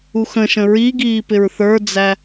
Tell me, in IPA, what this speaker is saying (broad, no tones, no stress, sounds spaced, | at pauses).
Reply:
u x ə̃ ʃ ə̃ ɹ i ɡ iː p ɪ ɹ θ ə˞ d͡z æ